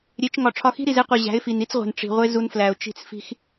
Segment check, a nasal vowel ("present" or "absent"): absent